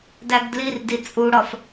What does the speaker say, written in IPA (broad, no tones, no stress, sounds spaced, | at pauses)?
d æ ɡ d l i r d i t͡sʼ u ɽ ɒ f